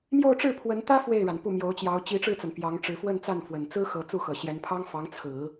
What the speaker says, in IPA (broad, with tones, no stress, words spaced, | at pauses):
mjo˥˧ʊ̯ʈ͡ʂɻ̩˥˩pʰwə˧˥nt̪ä˥ fwe˥˩ɪ̯ɻa˩n pu˥˩mjo˧˥ʊ̯t͡ɕjɑ˧˥ʊ̯ t͡ɕi˧˥ʈ͡ʂɻ̩˥˩t͡sa˩n pjɑ˧˥ŋʈ͡ʂɻ̩˧˥ fwə˥˧nt͡sa˥˩nfwə˨˩n t͡sɹ̩˥xɤ˨˩ t͡su˥˩xɤ˨˩ɕjɛ˧˥n pʰɑ˥ŋ fɑ˧˥ŋt͡sʰɹ̩˨˩˦